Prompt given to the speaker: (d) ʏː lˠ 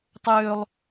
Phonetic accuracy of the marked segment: incorrect: tˤ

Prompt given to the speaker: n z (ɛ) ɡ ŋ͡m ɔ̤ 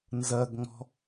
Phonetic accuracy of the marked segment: incorrect: ɜ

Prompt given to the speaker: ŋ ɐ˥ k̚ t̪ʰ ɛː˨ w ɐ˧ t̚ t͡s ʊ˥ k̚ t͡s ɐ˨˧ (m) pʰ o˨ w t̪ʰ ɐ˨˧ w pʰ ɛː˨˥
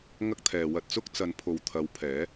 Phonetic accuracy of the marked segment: incorrect: n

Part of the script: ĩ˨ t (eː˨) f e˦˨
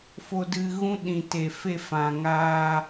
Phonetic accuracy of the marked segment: incorrect: e˨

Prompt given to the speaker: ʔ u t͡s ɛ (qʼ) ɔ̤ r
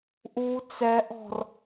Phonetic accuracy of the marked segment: incorrect: ʔ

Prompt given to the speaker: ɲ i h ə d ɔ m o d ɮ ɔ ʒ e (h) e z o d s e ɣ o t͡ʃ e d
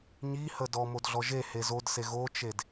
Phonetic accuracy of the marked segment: correct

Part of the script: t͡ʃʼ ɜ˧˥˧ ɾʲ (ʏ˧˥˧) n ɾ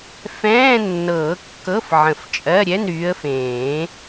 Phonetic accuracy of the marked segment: incorrect: ɛ˧˥˧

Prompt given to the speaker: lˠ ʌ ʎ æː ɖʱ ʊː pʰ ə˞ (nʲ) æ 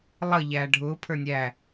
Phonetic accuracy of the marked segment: correct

